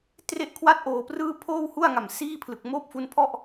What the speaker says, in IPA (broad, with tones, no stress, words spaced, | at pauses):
tre˥˩ʔkʰwa˥˩t̚ʔoː˧prɯː˥˩ pʰoː˥˩whu˥˩a̯ŋa˨˩msiː˥˩ pʰlɯ˨˩k̚moː˥˩p̚fu˦˥npʰɔ˥˩ʔ